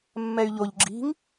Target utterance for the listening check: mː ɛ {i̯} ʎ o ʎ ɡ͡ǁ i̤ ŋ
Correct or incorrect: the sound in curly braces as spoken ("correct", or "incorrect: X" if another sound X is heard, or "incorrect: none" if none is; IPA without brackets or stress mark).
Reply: incorrect: y̯